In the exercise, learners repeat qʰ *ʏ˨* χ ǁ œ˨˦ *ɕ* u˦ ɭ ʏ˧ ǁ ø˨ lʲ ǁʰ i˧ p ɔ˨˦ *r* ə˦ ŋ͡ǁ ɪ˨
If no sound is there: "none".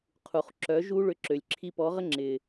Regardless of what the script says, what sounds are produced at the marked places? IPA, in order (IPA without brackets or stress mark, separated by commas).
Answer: u˨, ʒ, ʁ